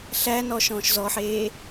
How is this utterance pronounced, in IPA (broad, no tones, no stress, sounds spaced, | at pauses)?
ɬ æ n ɔ ʃ ɔ̃ː ʃ z ɔ ħ eː